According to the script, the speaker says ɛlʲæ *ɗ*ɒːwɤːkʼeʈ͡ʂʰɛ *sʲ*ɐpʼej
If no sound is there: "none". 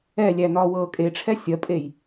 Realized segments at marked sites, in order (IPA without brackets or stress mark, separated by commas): n, sʲ